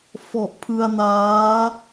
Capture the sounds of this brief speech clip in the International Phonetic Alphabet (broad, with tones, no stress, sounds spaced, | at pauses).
f ɔ˨˩ ʔ pʰ ɯ˧ a̯ n aː˦˥